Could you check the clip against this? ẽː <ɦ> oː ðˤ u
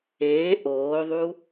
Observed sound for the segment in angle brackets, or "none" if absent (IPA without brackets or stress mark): ʔ